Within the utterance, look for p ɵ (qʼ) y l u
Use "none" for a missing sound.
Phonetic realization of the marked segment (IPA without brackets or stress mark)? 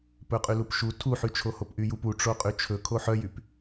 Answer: qʼ